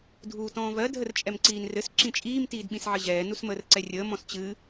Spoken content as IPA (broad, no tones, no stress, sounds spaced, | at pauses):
dʱ uː t ɔ̃ː v ɜ dʱ ə r t͡ʃʼ ɛ m ǀ iː n r ɘ s ǁ ĩ t͡ʃʼ iː m t iː d ɓ ĩ s ʕ ɘ ʑ ɛː n u s m əː r ǀ ɛ rʲ əː m ɔ̃ s t͡ɕ ɨ